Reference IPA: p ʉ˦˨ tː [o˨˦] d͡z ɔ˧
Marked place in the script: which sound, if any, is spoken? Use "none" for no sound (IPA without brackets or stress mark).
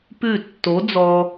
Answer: o˨˦